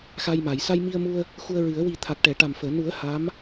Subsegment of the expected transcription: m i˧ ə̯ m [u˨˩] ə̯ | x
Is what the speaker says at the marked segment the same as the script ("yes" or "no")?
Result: no